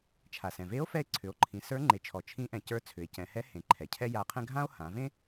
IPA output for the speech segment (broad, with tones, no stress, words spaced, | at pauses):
t͡ʃʰa˩sɛ̃˩ ve˧˥o̯fɛ˧e̯ ǀʰʏ˩˧o̯ǃʰĩ˩˧ sə˞˧˥ŋ͡ǃe˩˧t͡ʃʰɔ˩ t͡ʃʰĩ˧˥ʔɛ̃˩cə˞˧˥ t͡sʰʏ˩˧e̯ cɛ̃˩˧hɛ˧˥hẽ˩˧ ǃʰɛ˩cʰɛ˥ja˧˥qʰɛ̃˥ ɡʱã˥o̯ hã˩˧ vẽ˥